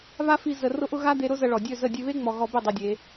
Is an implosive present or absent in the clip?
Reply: absent